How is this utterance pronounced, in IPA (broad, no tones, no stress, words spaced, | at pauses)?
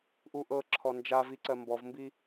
ʔuʔɤǁʰɔ nd͡ʒaviǀɜ mbɔvmbi